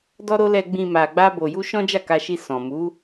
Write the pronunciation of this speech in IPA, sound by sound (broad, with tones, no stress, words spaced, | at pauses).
dɔ˦ɾo˦ lɛ˧ɡ͡bĩ˧ ma˧ ɡ͡ba˦bo˧ju˦ ʃɔ̃˦d͡ʒa˦˨ka˧ʃi˧ sɔ̃˨mu˨˦